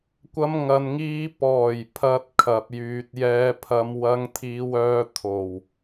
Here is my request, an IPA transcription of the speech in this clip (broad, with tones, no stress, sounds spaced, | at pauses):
kʷ ɐ˧ m ŋ ɐ˨ n ŋ iː˧ p ɔː˨˩ j pʰ ɐ˨ t̚ kʰ ɐ˨ p̚ j yː˨ t̚ j ɛː˧ pʰ ɐ˧ m w ɐ˧ ŋ t̪ʰ iː˧ w œː˧ t̪ʰ o˨˩ w